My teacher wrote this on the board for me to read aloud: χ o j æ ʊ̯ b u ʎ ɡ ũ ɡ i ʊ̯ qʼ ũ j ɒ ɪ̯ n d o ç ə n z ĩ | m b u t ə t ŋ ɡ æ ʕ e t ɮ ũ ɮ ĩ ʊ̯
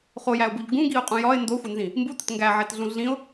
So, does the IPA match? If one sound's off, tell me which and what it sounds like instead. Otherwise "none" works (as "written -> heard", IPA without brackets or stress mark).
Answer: ç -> xʷ